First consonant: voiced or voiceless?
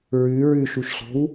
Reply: voiced